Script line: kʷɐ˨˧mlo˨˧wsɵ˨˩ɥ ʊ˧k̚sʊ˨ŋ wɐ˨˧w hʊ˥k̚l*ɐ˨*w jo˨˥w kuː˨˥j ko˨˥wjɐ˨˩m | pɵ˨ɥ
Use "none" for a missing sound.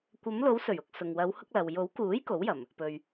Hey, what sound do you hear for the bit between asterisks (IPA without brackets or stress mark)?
ɐ˨